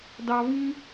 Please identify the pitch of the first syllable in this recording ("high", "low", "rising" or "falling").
high